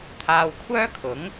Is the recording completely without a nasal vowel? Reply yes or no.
yes